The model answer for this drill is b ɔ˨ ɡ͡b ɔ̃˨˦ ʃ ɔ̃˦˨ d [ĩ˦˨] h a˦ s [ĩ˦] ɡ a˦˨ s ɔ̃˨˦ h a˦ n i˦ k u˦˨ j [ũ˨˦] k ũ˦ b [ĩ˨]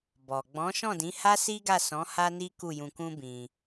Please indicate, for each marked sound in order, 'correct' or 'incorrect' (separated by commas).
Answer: incorrect, incorrect, incorrect, incorrect